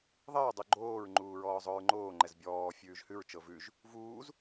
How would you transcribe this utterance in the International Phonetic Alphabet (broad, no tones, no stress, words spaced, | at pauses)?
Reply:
ðˤəɹdˤu ɡ͡ǃoːɹŋ͡ǃuː ɹɔːzˤoɹŋ͡ǃoː ŋ͡ǃɛzbʲɔː fʲʉːʒhʉɹt͡ʃɤ vʉʒ | vuːz